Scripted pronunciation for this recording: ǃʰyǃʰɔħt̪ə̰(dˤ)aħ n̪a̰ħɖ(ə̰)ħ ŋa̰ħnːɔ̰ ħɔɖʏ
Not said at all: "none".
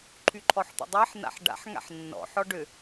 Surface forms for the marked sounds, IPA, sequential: dˤ, a̰

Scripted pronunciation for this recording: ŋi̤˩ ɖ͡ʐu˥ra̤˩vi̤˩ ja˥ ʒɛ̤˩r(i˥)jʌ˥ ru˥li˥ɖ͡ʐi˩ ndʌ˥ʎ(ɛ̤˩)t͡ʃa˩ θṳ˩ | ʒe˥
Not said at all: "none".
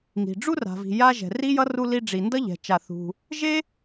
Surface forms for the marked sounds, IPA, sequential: i˥, ɛ̤˩

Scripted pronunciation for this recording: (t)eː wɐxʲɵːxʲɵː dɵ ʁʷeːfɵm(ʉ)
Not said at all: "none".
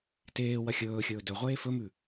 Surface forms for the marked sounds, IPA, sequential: t, ʉ

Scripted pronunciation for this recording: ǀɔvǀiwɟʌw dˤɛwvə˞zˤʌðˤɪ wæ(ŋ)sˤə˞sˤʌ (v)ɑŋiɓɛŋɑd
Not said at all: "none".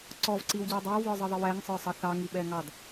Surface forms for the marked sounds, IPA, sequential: ŋ, θ

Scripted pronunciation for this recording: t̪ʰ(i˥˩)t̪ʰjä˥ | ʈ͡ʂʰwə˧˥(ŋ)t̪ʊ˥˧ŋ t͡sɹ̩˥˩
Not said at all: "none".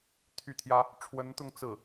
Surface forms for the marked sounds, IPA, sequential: y˥˩, n

